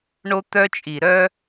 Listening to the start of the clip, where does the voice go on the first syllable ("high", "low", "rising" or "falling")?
high